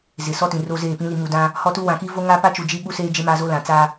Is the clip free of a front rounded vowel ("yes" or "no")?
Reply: yes